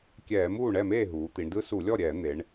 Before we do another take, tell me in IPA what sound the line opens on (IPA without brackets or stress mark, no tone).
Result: kʲ